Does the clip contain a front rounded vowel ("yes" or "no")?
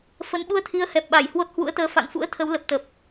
no